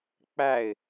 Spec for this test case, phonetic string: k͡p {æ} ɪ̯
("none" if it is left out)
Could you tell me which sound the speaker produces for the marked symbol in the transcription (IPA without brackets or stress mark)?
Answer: æ